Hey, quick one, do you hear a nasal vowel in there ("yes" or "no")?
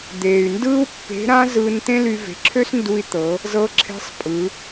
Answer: yes